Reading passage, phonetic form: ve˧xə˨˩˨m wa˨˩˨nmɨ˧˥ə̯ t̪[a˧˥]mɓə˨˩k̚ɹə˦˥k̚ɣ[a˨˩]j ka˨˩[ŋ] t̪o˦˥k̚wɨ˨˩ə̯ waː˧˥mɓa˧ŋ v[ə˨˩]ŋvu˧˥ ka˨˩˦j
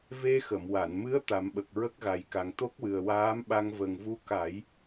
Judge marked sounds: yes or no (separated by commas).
no, yes, yes, yes